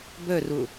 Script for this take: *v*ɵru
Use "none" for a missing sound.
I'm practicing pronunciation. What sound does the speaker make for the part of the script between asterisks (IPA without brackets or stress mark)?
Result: b